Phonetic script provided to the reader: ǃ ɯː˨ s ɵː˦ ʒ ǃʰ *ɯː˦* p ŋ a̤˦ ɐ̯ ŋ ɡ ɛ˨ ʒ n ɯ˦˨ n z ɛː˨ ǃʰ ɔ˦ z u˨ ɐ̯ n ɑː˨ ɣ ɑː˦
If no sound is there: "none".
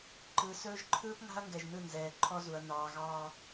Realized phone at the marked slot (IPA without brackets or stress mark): ɯː˦